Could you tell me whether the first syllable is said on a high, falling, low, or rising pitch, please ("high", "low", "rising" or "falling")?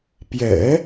low